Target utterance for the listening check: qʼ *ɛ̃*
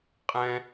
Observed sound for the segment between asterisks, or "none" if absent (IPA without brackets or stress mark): ɛ̃